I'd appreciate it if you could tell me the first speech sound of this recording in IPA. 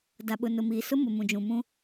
d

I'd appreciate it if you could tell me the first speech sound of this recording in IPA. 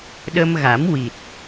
ɗ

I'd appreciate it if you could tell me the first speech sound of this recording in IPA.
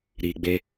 ɾ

